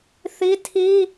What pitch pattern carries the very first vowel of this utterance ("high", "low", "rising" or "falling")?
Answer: high